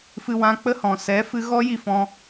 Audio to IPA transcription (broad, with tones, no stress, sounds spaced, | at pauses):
f ɨ˦ w ã˦ k͡p ə˦ h ɔ̃˨ s ɛ˨˦ f ɨ˧ ɣ ɔ˦ j i˧ f ɔ̃˦